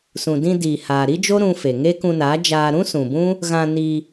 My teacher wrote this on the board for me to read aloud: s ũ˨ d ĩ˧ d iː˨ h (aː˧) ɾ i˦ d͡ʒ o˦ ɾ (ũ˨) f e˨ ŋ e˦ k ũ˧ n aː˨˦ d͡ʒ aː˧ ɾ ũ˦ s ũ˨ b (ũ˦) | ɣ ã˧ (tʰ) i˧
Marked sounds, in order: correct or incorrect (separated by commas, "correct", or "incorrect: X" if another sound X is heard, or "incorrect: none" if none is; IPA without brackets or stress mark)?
incorrect: aː˨, incorrect: ũ˧, correct, incorrect: n